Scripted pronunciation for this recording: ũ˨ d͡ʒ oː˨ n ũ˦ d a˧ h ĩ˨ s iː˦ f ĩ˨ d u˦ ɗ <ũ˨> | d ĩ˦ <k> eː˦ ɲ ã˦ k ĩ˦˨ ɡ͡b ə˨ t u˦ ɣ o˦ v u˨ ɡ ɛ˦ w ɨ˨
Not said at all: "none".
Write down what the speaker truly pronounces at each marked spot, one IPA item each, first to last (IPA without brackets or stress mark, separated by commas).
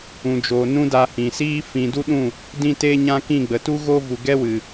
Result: ũ˦˨, t